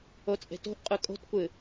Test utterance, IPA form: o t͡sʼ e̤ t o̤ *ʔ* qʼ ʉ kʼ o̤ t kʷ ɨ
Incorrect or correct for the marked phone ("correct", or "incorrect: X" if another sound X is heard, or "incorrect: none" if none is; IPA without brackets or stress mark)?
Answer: correct